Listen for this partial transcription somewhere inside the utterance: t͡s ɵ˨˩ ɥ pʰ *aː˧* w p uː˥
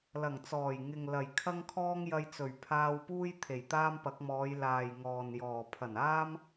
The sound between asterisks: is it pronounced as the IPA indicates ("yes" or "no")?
yes